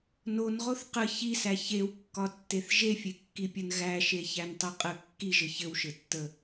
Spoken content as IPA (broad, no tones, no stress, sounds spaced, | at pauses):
n o n ʁ o θ q ə ç i s æ ç e w kː ɒ tː e θ ʒ e fʲ e kː i pʲ ɘ n ɣ æ ʃ e ç æ n tˤ i qʼ ə kː i ʒ ɘ ç ɘ w ʃ ɘ tː ə